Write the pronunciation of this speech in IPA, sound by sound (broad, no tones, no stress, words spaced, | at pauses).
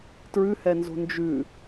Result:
tɹʉhɛnzo̤ nd͡ʒʉ